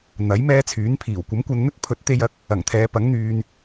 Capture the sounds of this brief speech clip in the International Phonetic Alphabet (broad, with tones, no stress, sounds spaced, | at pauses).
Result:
n̪ ɐ˨˥ j m ɛː˥ t͡sʰ yː˨˥ n pʰ iː˨˩ w kʷ ɐ˨˥ m kʷ ɐ˧ n n̪ ɵ˥ t̚ pʰ ɵ˨˥ t̚ t̪ e˧ j ɐ˨˥ k̚ | ɐ˨˩ ŋ t̪ʰ ɛː˨˧ p ɐ˨˥ ŋ n̪ yː˨ n